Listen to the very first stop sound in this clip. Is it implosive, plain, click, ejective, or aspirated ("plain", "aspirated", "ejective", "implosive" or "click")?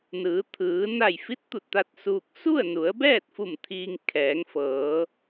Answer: aspirated